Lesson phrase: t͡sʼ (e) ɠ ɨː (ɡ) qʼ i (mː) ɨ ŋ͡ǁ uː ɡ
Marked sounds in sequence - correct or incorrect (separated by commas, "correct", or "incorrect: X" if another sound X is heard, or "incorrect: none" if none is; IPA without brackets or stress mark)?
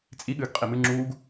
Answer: incorrect: i, correct, incorrect: m